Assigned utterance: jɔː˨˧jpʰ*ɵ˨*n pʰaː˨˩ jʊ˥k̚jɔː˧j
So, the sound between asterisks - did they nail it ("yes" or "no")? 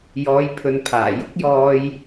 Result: yes